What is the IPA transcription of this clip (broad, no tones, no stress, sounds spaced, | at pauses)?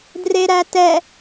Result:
d r e ɾ æ t ɛ